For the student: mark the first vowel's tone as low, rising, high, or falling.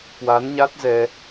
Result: rising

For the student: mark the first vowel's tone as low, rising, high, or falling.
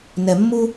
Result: low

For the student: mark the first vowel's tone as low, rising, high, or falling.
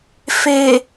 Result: low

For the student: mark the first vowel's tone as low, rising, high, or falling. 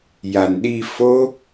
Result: low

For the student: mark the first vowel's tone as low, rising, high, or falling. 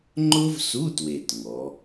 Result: high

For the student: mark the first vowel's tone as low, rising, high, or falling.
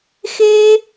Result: high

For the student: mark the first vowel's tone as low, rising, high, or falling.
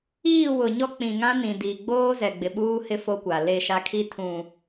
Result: falling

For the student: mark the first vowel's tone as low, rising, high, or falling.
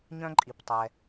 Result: high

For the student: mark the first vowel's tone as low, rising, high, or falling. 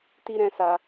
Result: high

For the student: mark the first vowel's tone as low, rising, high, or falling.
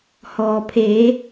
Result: low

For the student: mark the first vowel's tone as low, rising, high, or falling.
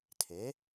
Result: rising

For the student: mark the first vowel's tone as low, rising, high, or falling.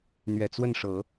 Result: low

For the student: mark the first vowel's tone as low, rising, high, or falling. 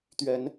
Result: rising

